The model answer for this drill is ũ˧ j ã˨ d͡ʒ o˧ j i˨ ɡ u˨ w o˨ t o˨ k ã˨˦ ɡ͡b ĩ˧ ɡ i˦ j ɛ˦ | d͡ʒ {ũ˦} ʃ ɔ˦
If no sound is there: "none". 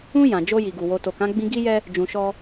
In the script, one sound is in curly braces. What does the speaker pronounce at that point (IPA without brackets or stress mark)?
ũ˧